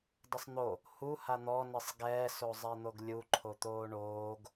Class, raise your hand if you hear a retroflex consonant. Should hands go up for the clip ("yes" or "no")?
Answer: yes